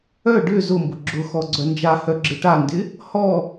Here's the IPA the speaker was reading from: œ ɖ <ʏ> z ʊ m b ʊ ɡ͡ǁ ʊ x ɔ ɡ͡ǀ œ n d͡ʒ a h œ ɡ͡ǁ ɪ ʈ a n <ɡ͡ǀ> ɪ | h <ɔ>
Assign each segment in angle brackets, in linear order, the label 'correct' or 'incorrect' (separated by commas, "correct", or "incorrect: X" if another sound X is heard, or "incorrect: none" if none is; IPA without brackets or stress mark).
correct, incorrect: d, correct